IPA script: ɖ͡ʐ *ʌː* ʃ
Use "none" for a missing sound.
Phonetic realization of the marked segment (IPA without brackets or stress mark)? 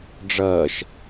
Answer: ʌː